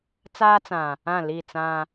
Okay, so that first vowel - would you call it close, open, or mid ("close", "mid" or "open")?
open